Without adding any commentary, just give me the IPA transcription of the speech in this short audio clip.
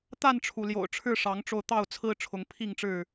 t̪ a˥˨ n ʈ͡ʂʰ u˩ l j o̰˨˩ ʊ̯ ʈ͡ʂʰ ɻ̩˥˨ ʂ ɑ˨˦ ŋ ʈ͡ʂ o˧ ʊ̯ t̪ ɑ˥˨ ʊ̯ t͡sʰ ɹ̩˦ ʈ͡ʂʰ ʊ˨˦ ŋ pʰ i˥˨ ŋ ʈ͡ʂ ɻ̩˥˨

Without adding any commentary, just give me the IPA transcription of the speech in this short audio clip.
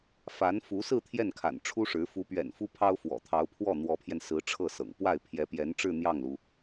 f a˧˥ n f u˧˥ s ɹ̩˥˧ t̪ʰ j ɛ˥˩ n kʰ a̰˨˩ n ʈ͡ʂʰ u˥ ʂ ɻ̩˧˥ f u˧˥ p ɥ ɛ̰˨˩ n f u˥ pʰ ɑ˥ ʊ̯ f w ɔ̰˨˩ t̪ʰ ɑ˧˥ ʊ̯ pʰ w ɔ˥˩ n̪ w ɔ˧˥ pʰ j ɛ˧ n s ɹ̩˧˥ ʈ͡ʂʰ ɤ˥˩ s ɤ̰˨˩ ŋ p w a˥˩ ɪ̯ pʰ j ɛ˧˥ p j ɛ˧˥ n ʈ͡ʂ ɻ̩˥˧ n̪ j ɑ˥˩ ŋ l u˩

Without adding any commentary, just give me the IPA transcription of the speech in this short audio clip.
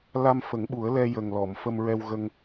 l a˧ m f ə˨˩˦ ŋ ɓ u˨˩˦ ə̯ l ɛ˧ j ə˨˩ ŋ l ɔ˨˩˨ m f ə˧ m ɹ ɛ˧ w ɣ ə˧ ŋ

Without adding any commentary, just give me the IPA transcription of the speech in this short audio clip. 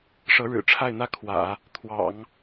ʂ ɤ˧˥ ɻ ɻ̩˨˩ ʈ͡ʂʰ a˥˩ ɪ̯ n̪ ä˥ kʰ w ä̰˨˩˦ | t̪ʰ w ɑ̰˨˩˦ ŋ

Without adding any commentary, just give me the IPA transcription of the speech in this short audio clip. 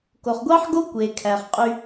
k o˨ χ ɡʷ ɑ˦ ħ ɡ o˦ kʷ e˨ kʰ æ˨ χ qʼ y˦

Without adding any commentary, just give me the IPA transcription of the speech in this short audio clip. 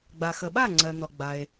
ɡ͡b a˩ x ə˩ ɓ a˥˩ ŋ͡ǀ ɜ˩ n̪ ɔ˩ ɡ͡b a˩ e̯

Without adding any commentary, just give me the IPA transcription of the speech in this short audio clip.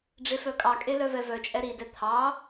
ɖ͡ʐ e f œ kʼ ɑ kʼ e l œ v ɛ v œ t͡ʃʼ ɛ ɾ i d ɛ t̪ʰ ɑ

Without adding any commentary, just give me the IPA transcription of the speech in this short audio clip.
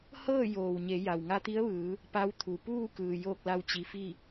h ɤː˥˨ j oː˩ w ɲ e˩˧ j a˩ w ŋ a˧ t̪ i˧˥ ə̯ ʋ ɯː˩˧ | p a˧˥ w t̪ʰ u˩ p uː˥˨ k ɯː˩ j oː˥˨ k̚ l a˧ w t͡ɕ i˩˧ f i˥˨

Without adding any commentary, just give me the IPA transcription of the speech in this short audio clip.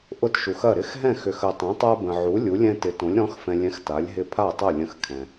ʔ ʊ˦ t ʃ u˨ x ɐ˥˨ ɾ ɪ˦ x ɦ ɛ̃˥˨ x ʏ˨ x ə˨ tˤ ɛ̃˨˥ tˤ a˦ b ə̃˨ ʕ u˨˥ lʲ u˨˥ lʲ ɛ̃˦ t ɪ˨˥ t õ˨˥ lʲ ɾ ɔ̃˨˥ x f ɛ̃˨ lʲ ɛ̃˨˥ x t a˨˥ lʲ ɦ ɪ˥˨ pʰ a˥˨ tˤ ɐ˥˨ lʲ ə̃˥˨ x kʰ ɛ̃˨

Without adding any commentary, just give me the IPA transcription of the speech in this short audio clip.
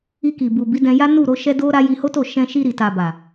i˧ k i˨ b u˨ b i˨˦ d ɛ̃˧ j a˦ n u˦˨ ɾ o˨˦ ʃ ɛ˦ d o˦ ɾ a˦ j i˧ h o˦ t o˦˨ ʃ ɛ̃˧ ʃ i˧ ɾ i˨ t a˨ b a˨

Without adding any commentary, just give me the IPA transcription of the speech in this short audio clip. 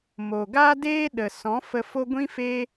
m o˨ ɡ a˦ d eː˦ ɗ ə˨ s ɔ̃˨˦ f ə˧ f o˦ ɡʷ ĩ˦ f e˦

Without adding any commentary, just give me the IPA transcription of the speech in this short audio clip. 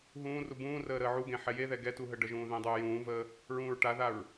ɦ ũː r u b ũː r əː ɾ əː ʕ u ɡ ẽ ħ ɛ j e ð ɛ ɡ ɛ t u ɦ ə ɖ ə ʒ ũː ð ẽ dˤ uː j ũː v əː | ɹ ũː ɹ ʈ a ð a ɹ

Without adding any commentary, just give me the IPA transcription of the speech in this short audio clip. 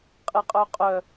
qʼ e qʼ œ qʼ œ

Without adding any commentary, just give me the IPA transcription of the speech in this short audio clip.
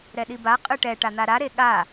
ɾ ɛ ɗ i b a qʼ ɯ ʈ ɛ ʈ a n̪ a ɾ a ɾ e ɠ a

